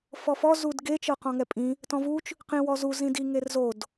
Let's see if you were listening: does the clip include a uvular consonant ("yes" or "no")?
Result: yes